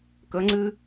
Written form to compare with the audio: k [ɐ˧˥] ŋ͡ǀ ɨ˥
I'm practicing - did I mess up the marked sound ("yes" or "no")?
yes